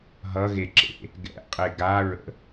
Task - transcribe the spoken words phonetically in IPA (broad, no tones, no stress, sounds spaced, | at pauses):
ɦ ʌ ɣ e ǁ ḛ | ɡ ɛ̰ qʼ e ɡ a ɹ ə̰